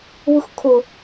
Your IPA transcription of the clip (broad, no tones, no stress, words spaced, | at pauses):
βɯxkʰʊ